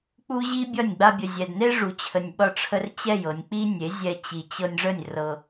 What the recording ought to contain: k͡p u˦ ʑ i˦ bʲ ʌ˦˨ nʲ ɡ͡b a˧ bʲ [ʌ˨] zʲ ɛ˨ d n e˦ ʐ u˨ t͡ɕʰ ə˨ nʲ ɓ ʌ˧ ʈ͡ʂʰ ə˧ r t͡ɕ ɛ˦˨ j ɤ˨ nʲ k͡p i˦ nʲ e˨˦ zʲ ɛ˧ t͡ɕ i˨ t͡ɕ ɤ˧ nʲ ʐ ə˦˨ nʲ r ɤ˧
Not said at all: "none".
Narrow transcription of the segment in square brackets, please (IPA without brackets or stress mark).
ə˨